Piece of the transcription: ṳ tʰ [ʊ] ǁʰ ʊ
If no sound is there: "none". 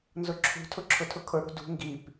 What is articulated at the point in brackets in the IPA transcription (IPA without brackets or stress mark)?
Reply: ʊ